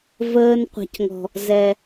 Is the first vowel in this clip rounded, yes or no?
no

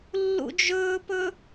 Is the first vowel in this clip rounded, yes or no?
yes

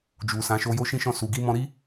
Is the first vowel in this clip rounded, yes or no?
yes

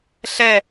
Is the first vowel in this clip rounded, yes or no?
no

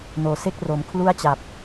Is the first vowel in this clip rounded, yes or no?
yes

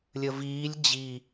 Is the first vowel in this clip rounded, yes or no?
no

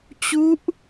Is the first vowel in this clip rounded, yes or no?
yes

